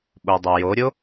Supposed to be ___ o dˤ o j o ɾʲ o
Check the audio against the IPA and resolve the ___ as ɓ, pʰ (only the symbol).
ɓ